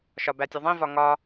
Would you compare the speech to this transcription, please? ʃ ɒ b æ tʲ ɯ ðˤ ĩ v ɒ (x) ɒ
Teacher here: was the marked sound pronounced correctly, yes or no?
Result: no